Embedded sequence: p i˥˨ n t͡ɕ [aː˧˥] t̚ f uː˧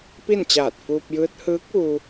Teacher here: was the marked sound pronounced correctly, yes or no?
no